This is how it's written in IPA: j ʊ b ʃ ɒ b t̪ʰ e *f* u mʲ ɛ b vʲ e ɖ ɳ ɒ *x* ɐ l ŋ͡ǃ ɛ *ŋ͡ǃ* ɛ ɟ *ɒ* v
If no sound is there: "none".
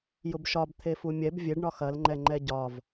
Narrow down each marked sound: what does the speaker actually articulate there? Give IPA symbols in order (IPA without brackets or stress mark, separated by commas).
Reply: f, x, ŋ͡ǃ, ɒ